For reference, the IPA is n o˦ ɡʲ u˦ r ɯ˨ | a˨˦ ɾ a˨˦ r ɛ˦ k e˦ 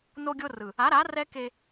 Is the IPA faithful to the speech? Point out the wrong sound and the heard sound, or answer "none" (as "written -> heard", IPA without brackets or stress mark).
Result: u˦ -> o˦